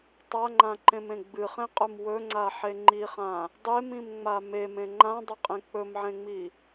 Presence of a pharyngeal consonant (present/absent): present